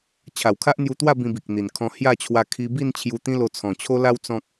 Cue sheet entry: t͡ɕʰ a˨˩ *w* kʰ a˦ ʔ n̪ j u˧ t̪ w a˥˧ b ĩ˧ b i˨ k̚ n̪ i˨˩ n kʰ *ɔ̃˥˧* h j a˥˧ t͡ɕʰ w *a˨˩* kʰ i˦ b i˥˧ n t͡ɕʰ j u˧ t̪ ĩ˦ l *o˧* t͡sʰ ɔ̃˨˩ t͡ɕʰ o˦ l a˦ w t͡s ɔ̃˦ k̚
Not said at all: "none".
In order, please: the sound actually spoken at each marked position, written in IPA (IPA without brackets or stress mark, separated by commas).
w, ɔ̃˧, a˧, o˧